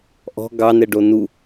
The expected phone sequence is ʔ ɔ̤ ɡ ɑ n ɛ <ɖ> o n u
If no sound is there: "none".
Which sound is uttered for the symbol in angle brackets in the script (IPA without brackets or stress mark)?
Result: ɖ